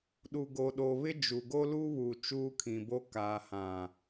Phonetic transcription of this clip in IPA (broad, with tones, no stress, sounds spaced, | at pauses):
ɗ u˨ ɡ o˨ ɗ o˨ β ɪ˦ d͡ʒ u˨ ɡ o˦ l u˦ β uː˨ t͡ʃ uː˦ kʰ ĩ˨ b o˦ k aː˨ h ã˨